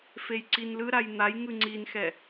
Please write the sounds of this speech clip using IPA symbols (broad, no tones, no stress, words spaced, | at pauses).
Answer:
fejǀinlɯɾaj n̪ajŋɯ ŋ͡ǀinxɛ